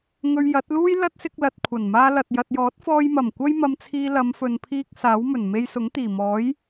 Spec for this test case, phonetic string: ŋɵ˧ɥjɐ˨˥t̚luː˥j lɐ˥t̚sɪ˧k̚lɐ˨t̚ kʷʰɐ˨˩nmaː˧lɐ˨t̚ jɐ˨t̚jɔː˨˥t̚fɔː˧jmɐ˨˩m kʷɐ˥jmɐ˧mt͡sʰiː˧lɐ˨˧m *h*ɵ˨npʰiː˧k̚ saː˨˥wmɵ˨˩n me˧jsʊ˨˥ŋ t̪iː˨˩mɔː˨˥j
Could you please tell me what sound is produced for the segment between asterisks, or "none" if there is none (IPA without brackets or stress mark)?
f